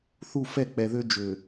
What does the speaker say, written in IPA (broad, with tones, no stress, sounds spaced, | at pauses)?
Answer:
θ u˦˨ f ɛ˦˨ k͡p ɛ˨ ð ø˦ d͡ʒ ø˨